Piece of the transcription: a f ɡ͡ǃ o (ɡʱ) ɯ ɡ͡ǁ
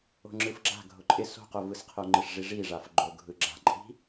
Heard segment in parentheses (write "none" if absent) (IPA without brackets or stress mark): ɡʱ